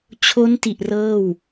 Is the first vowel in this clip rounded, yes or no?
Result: yes